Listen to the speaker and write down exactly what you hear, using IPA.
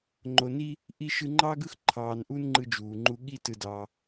ŋ͡ǃ o˨ n i˦ | ʔ i˧ ʃ ɯ˧ ŋ͡ǃ ɑː˦ ɡ ɯ˦ x ǃʰ ɑː˨ n ʔ u˧ n ŋ͡ǃ ɯ˦ d͡ʒ uː˨ ŋ͡ǃ u˧ ɠ i˦ t ɯ˧ d ɑ˧

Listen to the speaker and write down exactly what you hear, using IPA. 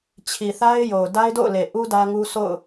t͡ɕʰ i˨ θ a˦ ɪ̯ j o˨ ʊ̯ d a˦ ɪ̯ d o̰˦˨ ʊ̯ l e˨ ʔ u˦ d ä˦ ŋ u˦ sʰ o̰˦˨ ʊ̯

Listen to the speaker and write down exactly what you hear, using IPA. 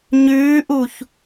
ɲ ʉː ʔ u ç

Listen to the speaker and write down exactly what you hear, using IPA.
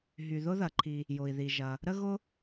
ɦ y˩ ð ʊ˥ ð ɐ˩ ǃʰ i˩ | j ʊ˩ i̯ ð i˩ ʒ ɐ˩ | ɾ ə˥ ɣ ʊ˥

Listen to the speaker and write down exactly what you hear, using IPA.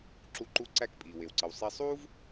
ǁ u˧ ǃ u˧˥ ǀ æ˧ k pʼ iː˩ w e˩ w ǀ ə˩ w sˤ e˧ sˤ uː˥ v

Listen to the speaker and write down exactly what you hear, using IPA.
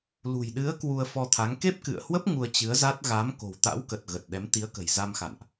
l ṳ˨˩ j ɗ ɨ˨˦ ə̯ k w u˧ ə̯ f ɔ˧ t̪ʰ a˨˦ ŋ k e˦˥ p̚ k ɨ̰˧˨ ə̯ h w ə˦˥ p̚ ŋ u˧ ə̯ t͡ɕ ɨ˨˦ ə̯ z a˦˥ t̚ ɣ a˨˦ m k o̤˨˩ w t̪ a̰˧˥ w k ə˨˩ t̚ ɣ ə˨˩ t̚ ɗ ɛ˨˦ m t̪ i˨˦ ə̯ k ə̤˨˩ j z a˧ m x a̰˧˨ n ʔ

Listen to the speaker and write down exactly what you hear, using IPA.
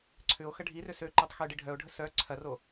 ǀʰ ʏ o̯ x ɐ ɖʱ i r ø s ø ǃ ø tˤ x ø ɖ i ɖʱ œ o̯ ɖʱ ə s œ ǀʰ ɐ r o

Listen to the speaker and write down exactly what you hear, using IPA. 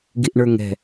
ɡ i ʔ ɳ ə˞ ŋ ɛ̤

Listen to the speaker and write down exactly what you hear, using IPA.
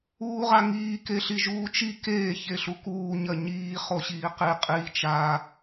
uː ʁ a ŋ iː k e ɬ i ʒ uː t͡ʃ i k eː ç e ɬ u k uː ɲ ɐ ɲ iː χ o ɕ iː q i qʼ iː t͡ʃ a

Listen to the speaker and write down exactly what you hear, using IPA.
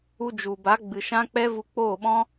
u˧ d͡ʒ u˨ b a˨˦ ɡ͡b ɨ˨ ʃ ã˦ k͡p ɛ˦ v u˧ k͡p oː˦˨ ɓ ɔ̃˦

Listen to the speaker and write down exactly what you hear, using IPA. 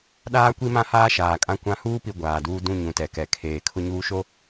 ɗ aː˦ kʷ i˦ m ã˦ h aː˦ ʃ aː˨ kʼ ã˦ kʷ ã˦ h uː˦ p i˨ ɡʷ aː˨ d uː˦ d ũ˦˨ ɲ ũ˨ t ɛ˨ k ɛ˨ kʰ eː˨ kʰ ʊ˦ ɲ uː˦ ʃ o˦

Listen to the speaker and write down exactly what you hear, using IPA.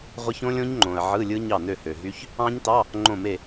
ʁʷ ɯ˦˥ ç õ˦˥ lʲ õ˦˥ ɲ ŋ͡ǃ õ˨ ə̯ ʕ ɯ˧˥˧ lʲ ɯ˦˥ ɲ ɑ˥˩ n ø˥˩ h ø˨ ɦ y˦˥ ç | ɑ̃˦˥ ɲ t ɑ˧˥˧ | ŋ͡ǃ õ˥˩ m e˥˩

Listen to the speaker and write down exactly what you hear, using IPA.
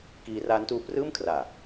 k iː˧ r aː˦˥ n t uː˦˥ p r ɯː˥˩ m kʰ r aː˨˩

